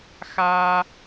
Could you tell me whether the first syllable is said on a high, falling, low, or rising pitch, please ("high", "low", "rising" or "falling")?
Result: high